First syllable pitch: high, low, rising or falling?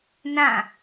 falling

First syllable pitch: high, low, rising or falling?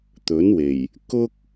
rising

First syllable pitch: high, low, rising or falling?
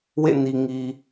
falling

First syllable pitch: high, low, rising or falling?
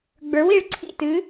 rising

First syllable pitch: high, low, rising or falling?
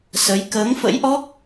rising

